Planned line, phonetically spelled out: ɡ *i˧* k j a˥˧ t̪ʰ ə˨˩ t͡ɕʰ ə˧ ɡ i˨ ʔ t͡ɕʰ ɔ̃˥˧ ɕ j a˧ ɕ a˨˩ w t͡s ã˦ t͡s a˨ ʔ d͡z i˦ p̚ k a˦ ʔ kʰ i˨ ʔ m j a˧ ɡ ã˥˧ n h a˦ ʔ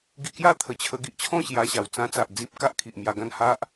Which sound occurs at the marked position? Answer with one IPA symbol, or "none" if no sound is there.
i˧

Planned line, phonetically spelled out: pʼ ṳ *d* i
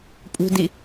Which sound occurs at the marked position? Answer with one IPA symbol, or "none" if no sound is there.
d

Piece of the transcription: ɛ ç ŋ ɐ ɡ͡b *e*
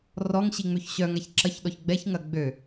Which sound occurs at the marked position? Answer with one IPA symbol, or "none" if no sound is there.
ø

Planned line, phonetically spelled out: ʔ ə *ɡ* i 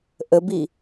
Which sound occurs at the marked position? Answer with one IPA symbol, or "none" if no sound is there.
b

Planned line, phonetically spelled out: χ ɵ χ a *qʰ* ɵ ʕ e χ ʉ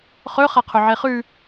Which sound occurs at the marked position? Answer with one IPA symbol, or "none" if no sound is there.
qʰ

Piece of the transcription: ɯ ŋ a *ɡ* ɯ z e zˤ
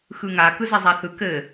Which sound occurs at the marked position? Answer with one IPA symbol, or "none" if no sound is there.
k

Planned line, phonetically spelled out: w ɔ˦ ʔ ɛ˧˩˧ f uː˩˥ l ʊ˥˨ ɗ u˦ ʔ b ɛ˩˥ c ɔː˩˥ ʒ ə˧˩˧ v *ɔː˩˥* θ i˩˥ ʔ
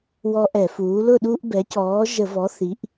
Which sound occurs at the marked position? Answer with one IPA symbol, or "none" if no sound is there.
ɔ˩˥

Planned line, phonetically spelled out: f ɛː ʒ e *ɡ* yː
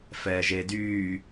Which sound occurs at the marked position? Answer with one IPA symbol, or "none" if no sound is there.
d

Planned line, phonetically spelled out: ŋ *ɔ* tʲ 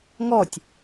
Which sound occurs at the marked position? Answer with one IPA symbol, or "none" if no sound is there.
ɔ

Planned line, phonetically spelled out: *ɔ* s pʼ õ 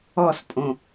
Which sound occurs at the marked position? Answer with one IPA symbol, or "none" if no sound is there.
ɔ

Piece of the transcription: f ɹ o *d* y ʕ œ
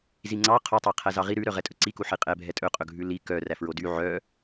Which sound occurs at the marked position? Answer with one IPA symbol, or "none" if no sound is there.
d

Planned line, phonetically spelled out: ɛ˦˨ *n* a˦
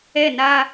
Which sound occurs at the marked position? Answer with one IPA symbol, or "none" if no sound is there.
n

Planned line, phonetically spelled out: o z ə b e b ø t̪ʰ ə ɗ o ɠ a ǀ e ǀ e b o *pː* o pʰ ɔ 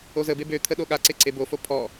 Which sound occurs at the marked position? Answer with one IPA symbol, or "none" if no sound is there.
f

